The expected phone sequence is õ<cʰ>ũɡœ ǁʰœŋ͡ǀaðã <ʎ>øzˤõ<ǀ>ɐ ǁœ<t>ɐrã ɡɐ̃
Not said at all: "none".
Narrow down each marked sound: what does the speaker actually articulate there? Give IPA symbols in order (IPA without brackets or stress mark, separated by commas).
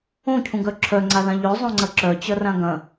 cʰ, ʎ, ŋ͡ǀ, t͡ɕ